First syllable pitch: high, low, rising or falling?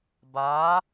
rising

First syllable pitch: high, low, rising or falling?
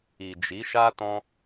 low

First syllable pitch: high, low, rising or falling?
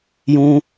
low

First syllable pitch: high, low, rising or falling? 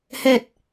low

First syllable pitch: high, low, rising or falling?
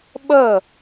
falling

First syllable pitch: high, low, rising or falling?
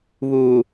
low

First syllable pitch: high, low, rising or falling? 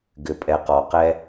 low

